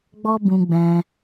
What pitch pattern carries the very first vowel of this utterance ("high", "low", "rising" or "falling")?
high